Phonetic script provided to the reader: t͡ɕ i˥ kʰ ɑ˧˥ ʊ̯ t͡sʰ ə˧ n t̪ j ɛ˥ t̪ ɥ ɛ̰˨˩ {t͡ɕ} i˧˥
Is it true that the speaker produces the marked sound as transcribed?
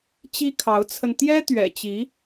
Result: yes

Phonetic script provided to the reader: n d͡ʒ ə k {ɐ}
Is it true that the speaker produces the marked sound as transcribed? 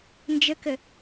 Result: no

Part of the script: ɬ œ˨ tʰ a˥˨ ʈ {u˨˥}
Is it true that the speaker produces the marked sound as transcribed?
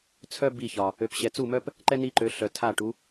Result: yes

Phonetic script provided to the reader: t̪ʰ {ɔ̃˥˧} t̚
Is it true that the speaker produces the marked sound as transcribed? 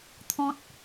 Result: no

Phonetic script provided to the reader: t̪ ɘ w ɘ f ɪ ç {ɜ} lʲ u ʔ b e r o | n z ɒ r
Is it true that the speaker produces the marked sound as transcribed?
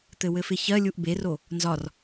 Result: yes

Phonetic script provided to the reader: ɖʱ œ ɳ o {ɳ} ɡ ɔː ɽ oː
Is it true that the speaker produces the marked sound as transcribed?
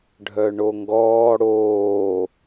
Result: no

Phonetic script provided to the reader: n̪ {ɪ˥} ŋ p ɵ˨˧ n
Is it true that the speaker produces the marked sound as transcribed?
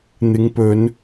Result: no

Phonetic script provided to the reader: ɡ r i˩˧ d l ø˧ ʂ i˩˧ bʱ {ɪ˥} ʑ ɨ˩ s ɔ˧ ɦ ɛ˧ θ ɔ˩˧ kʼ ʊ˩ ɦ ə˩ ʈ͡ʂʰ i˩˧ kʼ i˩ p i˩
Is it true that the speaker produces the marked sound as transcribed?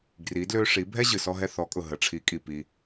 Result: no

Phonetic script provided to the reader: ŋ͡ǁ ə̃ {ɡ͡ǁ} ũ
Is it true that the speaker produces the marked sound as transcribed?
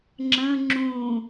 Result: no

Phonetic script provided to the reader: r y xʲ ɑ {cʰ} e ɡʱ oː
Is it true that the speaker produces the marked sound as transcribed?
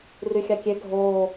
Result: no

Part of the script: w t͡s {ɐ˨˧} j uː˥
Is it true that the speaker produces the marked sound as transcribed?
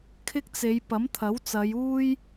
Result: yes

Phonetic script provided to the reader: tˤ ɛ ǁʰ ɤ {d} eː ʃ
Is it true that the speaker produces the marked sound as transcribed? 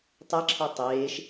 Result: no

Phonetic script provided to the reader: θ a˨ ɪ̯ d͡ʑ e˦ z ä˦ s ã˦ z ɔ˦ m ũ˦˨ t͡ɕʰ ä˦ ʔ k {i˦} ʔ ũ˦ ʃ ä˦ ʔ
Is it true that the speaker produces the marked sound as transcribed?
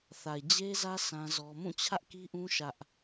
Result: yes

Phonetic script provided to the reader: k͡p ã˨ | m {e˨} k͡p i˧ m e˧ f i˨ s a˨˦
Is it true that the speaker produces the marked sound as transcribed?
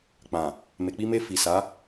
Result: yes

